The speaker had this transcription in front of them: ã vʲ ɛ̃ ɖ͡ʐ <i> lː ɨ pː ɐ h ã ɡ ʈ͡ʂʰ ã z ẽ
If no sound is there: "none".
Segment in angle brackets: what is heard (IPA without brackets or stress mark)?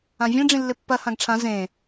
ĩ